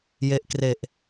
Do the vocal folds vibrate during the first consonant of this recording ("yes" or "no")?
yes